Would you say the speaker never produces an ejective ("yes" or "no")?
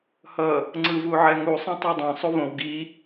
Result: yes